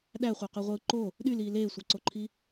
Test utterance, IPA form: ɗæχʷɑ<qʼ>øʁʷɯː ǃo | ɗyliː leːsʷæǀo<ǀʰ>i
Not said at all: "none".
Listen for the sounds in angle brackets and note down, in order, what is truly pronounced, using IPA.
q, ǃʰ

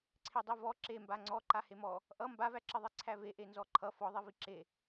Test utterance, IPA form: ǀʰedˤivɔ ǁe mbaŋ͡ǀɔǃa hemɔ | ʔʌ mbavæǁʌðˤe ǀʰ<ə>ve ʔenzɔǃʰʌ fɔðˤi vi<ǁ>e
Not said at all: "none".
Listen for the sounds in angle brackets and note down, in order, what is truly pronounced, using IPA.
æ, ǁ

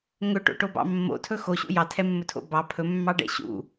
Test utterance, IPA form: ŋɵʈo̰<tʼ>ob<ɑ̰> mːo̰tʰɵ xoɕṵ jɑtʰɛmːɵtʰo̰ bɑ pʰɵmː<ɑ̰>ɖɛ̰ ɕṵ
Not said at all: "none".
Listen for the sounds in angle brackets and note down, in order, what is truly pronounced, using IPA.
ʈ, ɑ̰, ɑ

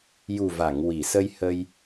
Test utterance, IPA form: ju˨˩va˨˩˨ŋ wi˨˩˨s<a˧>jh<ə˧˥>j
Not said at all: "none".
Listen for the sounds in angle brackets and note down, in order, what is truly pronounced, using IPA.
ə˧, ə˧

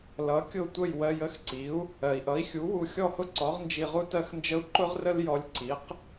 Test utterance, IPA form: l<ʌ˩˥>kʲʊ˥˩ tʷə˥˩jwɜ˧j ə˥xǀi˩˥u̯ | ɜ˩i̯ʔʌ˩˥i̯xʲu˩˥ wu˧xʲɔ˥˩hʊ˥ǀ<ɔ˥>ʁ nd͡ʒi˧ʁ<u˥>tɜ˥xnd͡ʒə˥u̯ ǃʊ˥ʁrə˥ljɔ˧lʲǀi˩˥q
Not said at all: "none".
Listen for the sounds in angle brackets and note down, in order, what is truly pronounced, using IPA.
ʌ˩˥, ɔ˩˥, u˥

